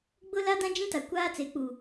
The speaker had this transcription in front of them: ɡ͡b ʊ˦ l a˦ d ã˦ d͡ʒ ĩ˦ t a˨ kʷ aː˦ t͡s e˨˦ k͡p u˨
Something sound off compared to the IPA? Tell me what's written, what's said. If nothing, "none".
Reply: none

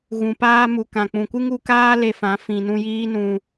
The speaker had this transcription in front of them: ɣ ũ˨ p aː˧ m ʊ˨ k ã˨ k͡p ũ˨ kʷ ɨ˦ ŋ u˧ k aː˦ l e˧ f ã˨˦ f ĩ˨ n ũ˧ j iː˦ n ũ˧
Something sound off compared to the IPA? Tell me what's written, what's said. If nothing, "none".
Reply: ʊ˨ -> u˨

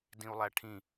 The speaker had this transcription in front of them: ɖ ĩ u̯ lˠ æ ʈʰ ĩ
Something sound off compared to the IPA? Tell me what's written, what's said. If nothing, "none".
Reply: ɖ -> d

